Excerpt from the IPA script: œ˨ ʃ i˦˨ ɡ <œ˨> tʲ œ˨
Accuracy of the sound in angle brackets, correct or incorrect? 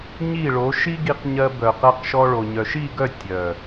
incorrect